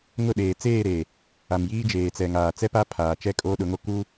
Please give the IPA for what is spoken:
ŋ ʊ˦˨ ɗ eː˨ t͡s eː˦˨ ɾ e˨ | a˨ m j iː˦ d͡ʒ eː˨ t͡s ɛ˨ ŋ aː˨ t͡s ɛ˦ p a˦ pʰ aː˨ t͡ʃ ɛ˦ kʼ oː˦ ɗ ʊ˨˦ ŋ o˦ k u˦

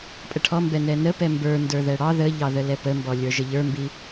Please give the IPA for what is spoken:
pʼ ə ʈʰ ɔ m b ɛ n ɛ n ə p ɛ m b ə˞ n d ə˞ ð ɛ ɽ ɑ ð ə ʎ ɑ ð ə l ɛ p ə m b ɔ lʲ ə˞ ʒ ə ʎ ə˞ m b i

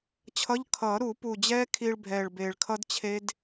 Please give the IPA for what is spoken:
t͡ɕʰ ʌ˧˥˧ ʎ kʰ ʌː˨˩˦ ɾ u˨˩˦ p u˨˩ d͡ʑ ɛː˦˥ kʰ iː˧ ɭ bʱ ɛː˨˩ ɭ b eː˨˩ ɭ kʰ ʌ˦˥ d t͡ɕʰ e˦˥ d

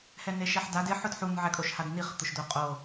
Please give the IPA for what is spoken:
h ɛ n e ʃ ɛ ħ d a d ɪ ħ ʊ d ħ u n ʕ ɛ kʼ o ʃ h a d n i χ t̪ ʊ ʃ d o qʼ o

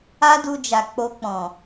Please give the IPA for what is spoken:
a˦ d u˧ d͡ʒ a˨ k͡p o˧ k͡p ɔ̃˨

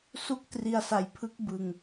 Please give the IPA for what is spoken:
s u˥˩ k̚ t r i˧ a̯ s a˨˩ j pʰ ɯ˦˥ k̚ b ɯ˨˩ ŋ

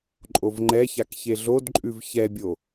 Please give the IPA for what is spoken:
ǃʼ o v ŋ͡ǃ ɛ ç a k ç e ɮ o d ǃʼ ʉ v ç ɛ bʲ o

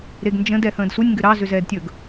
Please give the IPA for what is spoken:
ɾ e ɡ n d͡ʒ ə̃ d ɛ h ə̃ː d s u nʲ ŋ ɡ ʏ ɾ ɑ z ʏ z ɛː d tʲ ɵ ɡ

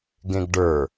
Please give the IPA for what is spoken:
ɡ ẽ ɡ ɖ ə˞

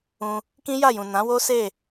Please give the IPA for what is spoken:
ũ˧ | k ĩ˦ j a˦˨ j ũ˨ n ã˨˦ w o˦ s e˦˨

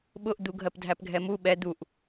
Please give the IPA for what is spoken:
ɓ ʊ ʔ d̪ u ɡʱ ɜ p dʱ æ p ɡʱ ɛ m u ɓ ɛ d̪ u ʔ

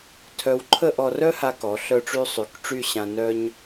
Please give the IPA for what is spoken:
tʰ œ˧ w ǃʰ ə˥˧ ʔ ɔ˧ r œ˥ h a˧ k ɔ˩˧ ɬ œ˧ ʈ͡ʂ y˧ sˤ y˩˧ k ʈ͡ʂ y˥˧ ɕ ã˧ n œ˥ ɲ

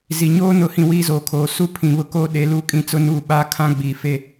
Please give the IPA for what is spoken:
z i˨ ɲ oː˦ n ʊ˨˦ h ĩ˨ w iː˦ z oː˨ kʰ oː˨ s u˦ pʰ ĩ˨ β ʊ˦ k oː˦ ɗ e˨˦ l uː˦ kʼ ĩ˦ t͡s ʊ˦ n uː˦˨ ɓ aː˦ kʰ ã˦ ɡ͡b iː˨ f e˦

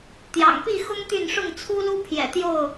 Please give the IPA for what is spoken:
t̪ j ɑ̰˨˩ ŋ p i˥˨ x ʊ˦ ŋ t̪ y˥˨ n ʂ ʊ˥˨ ŋ t͡sʰ u˦ l u˦ pʰ j ɛ̰˨˩ t̪ j o˥˨ ʊ̯

